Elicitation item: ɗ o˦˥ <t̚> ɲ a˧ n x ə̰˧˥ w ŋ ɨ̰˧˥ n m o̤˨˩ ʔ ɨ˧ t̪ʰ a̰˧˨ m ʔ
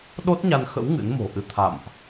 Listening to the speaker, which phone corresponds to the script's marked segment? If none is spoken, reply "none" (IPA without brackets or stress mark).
t̚